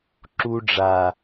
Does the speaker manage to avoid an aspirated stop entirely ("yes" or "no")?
yes